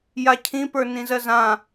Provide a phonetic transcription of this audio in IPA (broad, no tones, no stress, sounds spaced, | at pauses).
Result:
j a cʰ ĩ p ə˞ n ĩ z ɜ z ã